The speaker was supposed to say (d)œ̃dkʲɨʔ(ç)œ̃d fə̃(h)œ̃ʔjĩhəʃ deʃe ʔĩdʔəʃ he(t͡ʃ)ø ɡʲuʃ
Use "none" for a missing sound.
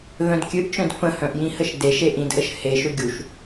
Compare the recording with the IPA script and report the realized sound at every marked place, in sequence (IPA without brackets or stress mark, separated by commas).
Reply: ð, t͡ʃ, h, ʃ